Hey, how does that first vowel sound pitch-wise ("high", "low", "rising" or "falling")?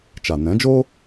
low